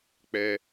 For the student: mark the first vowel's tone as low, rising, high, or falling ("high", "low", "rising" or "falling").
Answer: high